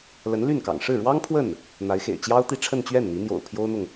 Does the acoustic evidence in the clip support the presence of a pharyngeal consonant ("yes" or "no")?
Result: no